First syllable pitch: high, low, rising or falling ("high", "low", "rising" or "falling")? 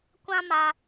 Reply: high